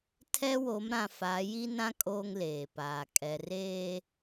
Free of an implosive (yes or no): yes